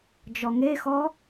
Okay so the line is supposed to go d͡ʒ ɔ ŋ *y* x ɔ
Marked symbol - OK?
no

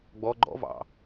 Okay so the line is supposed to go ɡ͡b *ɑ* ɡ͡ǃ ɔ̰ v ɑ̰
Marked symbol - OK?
no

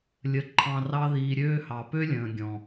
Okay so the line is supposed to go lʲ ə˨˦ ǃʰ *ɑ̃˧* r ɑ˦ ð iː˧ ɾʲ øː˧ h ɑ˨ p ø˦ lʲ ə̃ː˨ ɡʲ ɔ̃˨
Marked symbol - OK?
yes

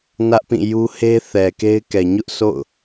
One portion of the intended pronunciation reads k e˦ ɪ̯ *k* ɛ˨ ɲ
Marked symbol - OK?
yes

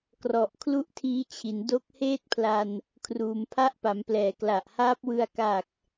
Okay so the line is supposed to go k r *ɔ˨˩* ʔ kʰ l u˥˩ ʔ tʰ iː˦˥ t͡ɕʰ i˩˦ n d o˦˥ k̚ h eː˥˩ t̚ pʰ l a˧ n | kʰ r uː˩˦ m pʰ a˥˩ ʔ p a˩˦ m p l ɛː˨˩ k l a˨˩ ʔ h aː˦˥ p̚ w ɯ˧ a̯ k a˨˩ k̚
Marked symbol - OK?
yes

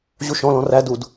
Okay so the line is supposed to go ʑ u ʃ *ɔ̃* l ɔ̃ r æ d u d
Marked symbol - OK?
yes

